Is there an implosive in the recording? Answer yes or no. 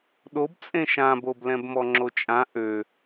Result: yes